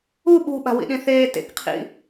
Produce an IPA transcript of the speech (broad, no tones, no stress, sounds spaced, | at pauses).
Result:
u ɓ ṳ ɓ a̤ w ḭ ɗ ĩ θ eː t ḛ k qʰ ḭ